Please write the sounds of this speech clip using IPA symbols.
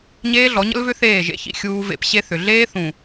ɲeː˦ɮɔ˨˦ɲə̰˦lvʏ˦ θeː˦˨ʒḛ˦çḭ˦ xʲuː˦vḛ˦p ɕe˦θʏ˨ ɮeː˦ θũ˨

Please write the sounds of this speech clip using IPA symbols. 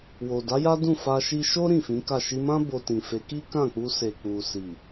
wo˨da˨˦ja˦ dũ˦˨fa˧ ʃi˧ʃo˦ ɾĩ˦˨fĩ˨˦ka˦˨ ʃi˧mã˦ bo˧tĩ˨fe˨˦ ki˦kã˦˨k͡pu˧se˨ k͡pu˨si˨

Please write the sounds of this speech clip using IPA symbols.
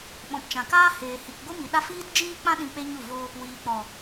ɓɔ̃˨pt͡ʃã˨kaː˦heː˨ hi˨kɡʷɨ˦mi˨ɗa˦ fiː˦td͡ʒiː˦k͡pã˦ ɗĩ˧k͡pe˦ ɲu˦˨ vo˧ | wiː˨k͡pɔ˨

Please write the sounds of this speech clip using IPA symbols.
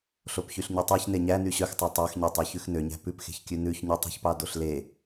ɬopçyɬɲytˤɑç neɲæ nyɕœxtˤo tˤɑxɲøtˤø çʉxnøɲæ̤ pʉpxe̤çkʲʉ nʉçɲytˤṳçpɑ doɬle

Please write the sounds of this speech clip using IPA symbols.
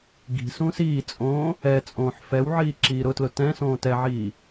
ɡi̤sũːs iːt͡sʼõː | ɛ t͡sʼõːħfɛwʕiː ǁiːɾʊtlʊ tɛ̃sõː tɛʕiː

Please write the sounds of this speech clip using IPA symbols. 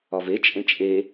ɒve t͡ʃʼẽt͡ʃʼe

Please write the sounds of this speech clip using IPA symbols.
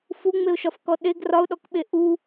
fuŋ͡meʊ̯ʃɒf kɔɗeɡ rɒʊ̯ɗɔkɓe ʔu

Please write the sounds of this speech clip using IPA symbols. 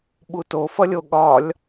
ɓutofʌlʲo ɠɒlʲ

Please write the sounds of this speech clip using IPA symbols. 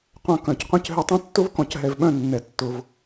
qʷɐ̃˧kœ̃˨cqʷɐ̃˦c ɦʏ˧tˤɐ̃˦tːʊ˦vkɔ̃˨c ɦɛ˨vɓœ̃˦˨ nːɛ˨tːʊ˨v

